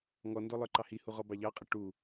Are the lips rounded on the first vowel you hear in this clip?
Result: yes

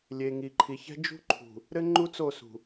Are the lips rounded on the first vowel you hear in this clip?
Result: no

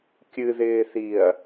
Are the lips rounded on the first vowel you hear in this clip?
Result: no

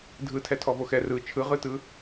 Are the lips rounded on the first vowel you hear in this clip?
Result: no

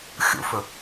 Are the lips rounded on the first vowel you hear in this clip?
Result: yes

